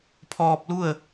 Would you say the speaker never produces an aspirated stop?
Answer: no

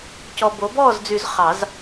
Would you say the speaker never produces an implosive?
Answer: yes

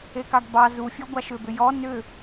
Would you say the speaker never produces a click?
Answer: yes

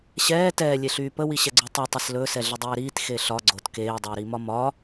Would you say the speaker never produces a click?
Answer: no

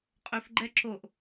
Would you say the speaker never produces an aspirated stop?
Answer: yes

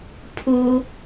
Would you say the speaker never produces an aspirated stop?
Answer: no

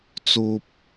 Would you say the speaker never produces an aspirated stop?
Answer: yes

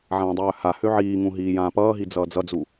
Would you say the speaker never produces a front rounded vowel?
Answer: no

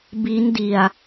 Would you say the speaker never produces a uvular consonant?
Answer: yes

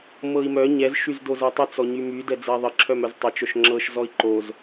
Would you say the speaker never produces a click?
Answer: no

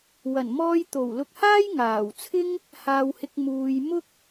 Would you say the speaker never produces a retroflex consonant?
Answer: yes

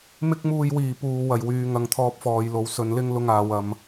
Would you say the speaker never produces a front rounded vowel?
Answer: no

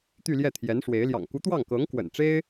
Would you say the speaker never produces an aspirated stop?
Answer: no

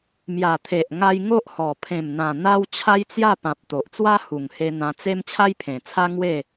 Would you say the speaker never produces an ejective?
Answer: yes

